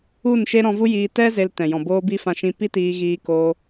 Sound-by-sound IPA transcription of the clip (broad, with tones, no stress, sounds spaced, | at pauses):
u˦˨ n ʃ e˦ ɾ ɔ̃˧ v u˦ j iː˧ t ɛ˦ z e˧ l t ɛ̃˨ j ɔ̃˨ b oː˧ b i˧ f ã˧ ʃ ĩ˧ p i˦ t iː˧ ɣ iː˧ k oː˧